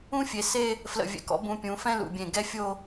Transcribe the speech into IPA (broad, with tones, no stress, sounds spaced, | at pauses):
ũ˥ fʲ e˩˧ s e˥˧ | f l ə̰˧˩ vʲ ɛ̰˧˩ k ɔ̰˥ b ũ˧ pʲ ũ˩˧ f ɛ̃˥˧ l ṵ˧˩ bʲ ẽ˧˩ ɡ ɛ˥ fʲ o˥˧